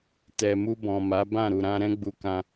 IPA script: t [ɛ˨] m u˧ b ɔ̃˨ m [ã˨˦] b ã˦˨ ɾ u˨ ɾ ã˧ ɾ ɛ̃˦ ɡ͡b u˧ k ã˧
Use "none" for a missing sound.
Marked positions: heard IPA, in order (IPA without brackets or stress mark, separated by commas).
ɛ˨, a˨˦